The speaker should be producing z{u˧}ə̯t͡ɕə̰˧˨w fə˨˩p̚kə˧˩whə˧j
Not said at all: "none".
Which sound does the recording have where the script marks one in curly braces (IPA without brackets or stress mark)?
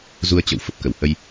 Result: u˧